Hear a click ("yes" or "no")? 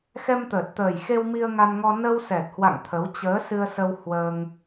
no